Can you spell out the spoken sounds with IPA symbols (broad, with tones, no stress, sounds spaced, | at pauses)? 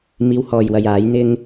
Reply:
m iː˨˧ w h ɔː˨ j w ɐ˨ j aː˨˧ j n̪ ɪ˧ ŋ